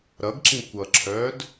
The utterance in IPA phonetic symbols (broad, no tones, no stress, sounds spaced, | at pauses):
ɾ ʌ ɡ ǁ ĩ kʷ ʌ ǁʰ œː d